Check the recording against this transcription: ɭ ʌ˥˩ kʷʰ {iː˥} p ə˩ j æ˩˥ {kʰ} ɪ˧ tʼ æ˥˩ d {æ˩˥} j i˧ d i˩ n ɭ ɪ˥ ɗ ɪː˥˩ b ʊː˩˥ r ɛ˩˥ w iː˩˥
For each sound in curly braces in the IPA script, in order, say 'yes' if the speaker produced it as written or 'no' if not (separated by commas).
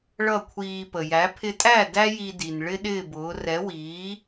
no, no, no